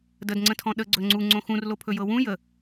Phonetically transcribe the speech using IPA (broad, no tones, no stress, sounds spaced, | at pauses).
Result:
d ə d ŋ͡ǀ ə̃ tʰ ɔ̃ ɗ ə ɡ͡ǀ ɵ ŋ͡ǀ u ŋ͡ǀ õ x ũ r l o pʰ ɵ j ɤ w ũ j ə